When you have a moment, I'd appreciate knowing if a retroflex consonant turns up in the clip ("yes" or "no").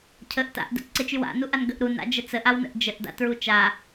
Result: no